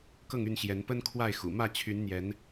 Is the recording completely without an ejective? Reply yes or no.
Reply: yes